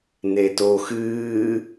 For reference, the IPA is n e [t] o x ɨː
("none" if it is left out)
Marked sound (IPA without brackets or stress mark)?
t